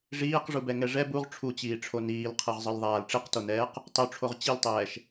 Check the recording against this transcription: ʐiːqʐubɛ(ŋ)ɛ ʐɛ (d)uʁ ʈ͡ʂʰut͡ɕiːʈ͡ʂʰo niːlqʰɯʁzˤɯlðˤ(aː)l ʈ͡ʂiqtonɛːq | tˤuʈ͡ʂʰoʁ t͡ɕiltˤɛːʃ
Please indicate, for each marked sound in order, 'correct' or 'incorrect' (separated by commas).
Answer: correct, incorrect, correct